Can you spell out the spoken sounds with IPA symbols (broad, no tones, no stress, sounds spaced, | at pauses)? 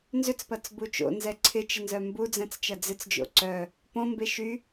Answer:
n z ʏ t͡s p ɐ t͡s b u t͡ʃ o̰ n z ɛ ǀʰ ɪ t͡ʃ ɪ n z œ m b u d͡z ɛ̃ t͡s t͡ʃ ɐ d͡z ɪ t͡s d͡ʒ o̰ ǀ œ | p õ m b e ʃ y